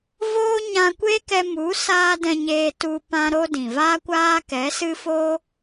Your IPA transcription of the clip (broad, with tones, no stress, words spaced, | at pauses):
voː˦ɲã˧ kʷe˦kɛ˧mu˨˦ saː˦dɛ̃˧ɲeː˧tu˧ pã˦ɾo˦dĩ˨ vaː˦kʷaː˦kɛ˨˦sɨ˦ fo˦